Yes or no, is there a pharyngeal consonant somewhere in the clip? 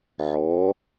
yes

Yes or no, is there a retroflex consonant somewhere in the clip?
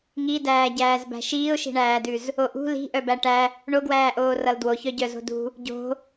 yes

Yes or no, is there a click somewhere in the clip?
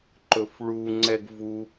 yes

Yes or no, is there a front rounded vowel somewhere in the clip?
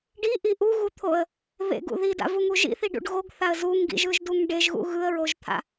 no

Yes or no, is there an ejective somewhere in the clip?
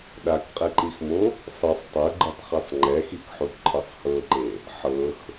yes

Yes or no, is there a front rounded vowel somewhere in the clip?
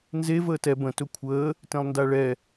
no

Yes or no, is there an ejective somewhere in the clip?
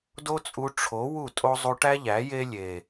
yes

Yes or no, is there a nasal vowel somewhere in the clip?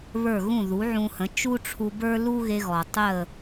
yes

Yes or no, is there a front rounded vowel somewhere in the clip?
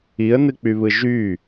yes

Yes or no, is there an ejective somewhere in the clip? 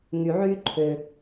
no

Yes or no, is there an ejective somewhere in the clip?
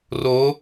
no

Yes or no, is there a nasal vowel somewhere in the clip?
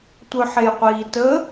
no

